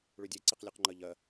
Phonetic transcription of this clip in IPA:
ɭʉdʲe ǀeqlʲʉqŋ͡ǃɜʎɜ

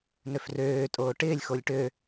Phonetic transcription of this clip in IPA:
nøfrøː tʼoːʈɪːlʲ xolʲʈø

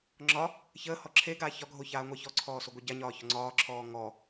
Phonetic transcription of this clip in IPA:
ŋ͡ǁɒ | çəː hɔǁʰeɡaː çɒɡʱo çaːŋʷɑçɔǀʰɔː soɡʷeɟaɲɒː çɔŋ͡ǀɒːǁʰɔː ŋɔ

